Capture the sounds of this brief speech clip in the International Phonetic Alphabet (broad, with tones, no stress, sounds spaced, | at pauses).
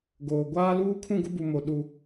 ɡ oː˨ ɡʷ aː˦ l uː˦ kʰ ũ˦˨ ɡ ʊ˦ b u˨ m o˨ ɗ u˦